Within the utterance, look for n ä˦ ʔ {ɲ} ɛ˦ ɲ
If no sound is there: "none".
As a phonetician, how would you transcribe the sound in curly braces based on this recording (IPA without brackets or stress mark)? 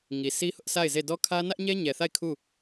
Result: ɲ